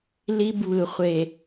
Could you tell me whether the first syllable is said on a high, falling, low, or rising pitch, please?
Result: high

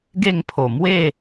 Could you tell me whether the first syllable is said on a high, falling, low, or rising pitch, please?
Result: falling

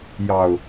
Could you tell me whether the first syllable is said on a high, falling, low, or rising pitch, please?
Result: low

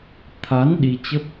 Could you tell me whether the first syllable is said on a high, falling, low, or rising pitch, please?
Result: rising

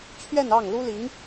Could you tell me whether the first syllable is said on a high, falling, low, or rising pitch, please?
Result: falling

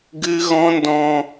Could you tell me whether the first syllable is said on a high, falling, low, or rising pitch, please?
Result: high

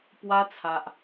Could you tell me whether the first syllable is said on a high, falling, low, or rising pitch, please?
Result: high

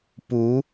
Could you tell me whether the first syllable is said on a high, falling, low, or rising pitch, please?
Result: rising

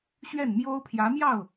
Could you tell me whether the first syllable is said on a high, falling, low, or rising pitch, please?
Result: falling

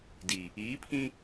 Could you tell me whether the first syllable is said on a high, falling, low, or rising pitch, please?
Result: low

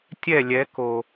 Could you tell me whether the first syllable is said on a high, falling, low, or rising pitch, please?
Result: falling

